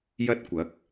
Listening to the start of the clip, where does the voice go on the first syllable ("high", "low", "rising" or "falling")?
high